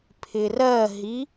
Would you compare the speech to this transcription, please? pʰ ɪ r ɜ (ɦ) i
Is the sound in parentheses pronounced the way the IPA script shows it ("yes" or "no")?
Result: yes